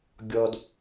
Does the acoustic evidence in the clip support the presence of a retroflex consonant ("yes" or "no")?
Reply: no